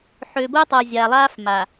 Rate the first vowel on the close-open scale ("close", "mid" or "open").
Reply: mid